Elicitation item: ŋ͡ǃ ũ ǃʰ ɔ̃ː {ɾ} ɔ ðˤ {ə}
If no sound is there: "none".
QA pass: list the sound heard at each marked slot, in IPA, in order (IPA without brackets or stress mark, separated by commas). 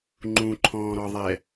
ɾ, ɛ